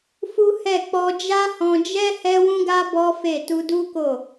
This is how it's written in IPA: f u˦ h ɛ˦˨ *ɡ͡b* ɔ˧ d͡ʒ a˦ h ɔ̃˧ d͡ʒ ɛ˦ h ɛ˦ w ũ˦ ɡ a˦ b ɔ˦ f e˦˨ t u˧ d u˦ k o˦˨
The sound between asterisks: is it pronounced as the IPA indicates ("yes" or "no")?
no